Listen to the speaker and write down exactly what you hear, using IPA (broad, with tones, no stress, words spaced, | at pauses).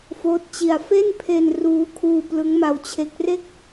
foː˦˥t̚t͡ɕi˧a̯ fe˥˩npʰe˧n ruː˦˥kʰuː˧ plɯ˦˥ŋma˧wt͡ɕʰe˦˥k̚ re˥˩k̚